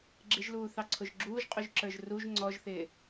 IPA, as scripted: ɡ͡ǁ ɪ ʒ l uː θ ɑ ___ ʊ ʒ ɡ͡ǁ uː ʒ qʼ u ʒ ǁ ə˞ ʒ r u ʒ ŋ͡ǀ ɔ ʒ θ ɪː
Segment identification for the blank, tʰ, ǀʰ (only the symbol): ǀʰ